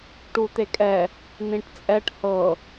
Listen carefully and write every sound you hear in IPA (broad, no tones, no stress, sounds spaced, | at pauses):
ʈ u t̪ e kʼ ɛ | n ĩ ʈ t͡sʼ ɛ ʈ h ɤ